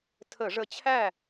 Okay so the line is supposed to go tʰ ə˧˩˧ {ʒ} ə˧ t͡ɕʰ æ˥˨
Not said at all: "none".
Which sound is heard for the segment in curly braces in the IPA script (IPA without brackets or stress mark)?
ʐ